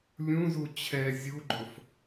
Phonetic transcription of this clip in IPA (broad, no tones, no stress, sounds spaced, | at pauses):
lʲ ũ z u t͡ɕʰ ɛ zʲ u ɡ͡ǃ ʊ f